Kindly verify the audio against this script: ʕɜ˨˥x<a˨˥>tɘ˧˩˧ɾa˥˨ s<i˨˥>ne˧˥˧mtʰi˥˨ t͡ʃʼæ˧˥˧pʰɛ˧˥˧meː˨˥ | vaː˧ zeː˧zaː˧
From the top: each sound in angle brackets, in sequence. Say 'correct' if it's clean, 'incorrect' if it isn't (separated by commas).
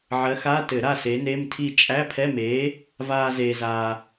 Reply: incorrect, incorrect